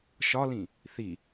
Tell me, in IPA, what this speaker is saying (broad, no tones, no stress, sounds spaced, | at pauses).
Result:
ʃ ɒ l ĩ | θ i